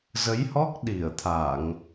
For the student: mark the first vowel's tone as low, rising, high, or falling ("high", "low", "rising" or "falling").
rising